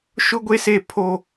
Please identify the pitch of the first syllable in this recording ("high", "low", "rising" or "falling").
high